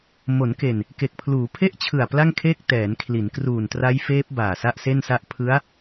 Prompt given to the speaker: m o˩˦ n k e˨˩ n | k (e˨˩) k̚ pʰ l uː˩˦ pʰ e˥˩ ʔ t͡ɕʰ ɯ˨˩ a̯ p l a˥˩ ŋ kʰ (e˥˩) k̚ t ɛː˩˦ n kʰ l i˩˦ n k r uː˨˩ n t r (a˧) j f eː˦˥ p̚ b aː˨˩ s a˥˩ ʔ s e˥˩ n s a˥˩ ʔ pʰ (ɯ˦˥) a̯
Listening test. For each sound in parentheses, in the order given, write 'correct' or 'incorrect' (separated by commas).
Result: correct, incorrect, incorrect, correct